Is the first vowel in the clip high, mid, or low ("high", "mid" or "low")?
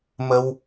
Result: mid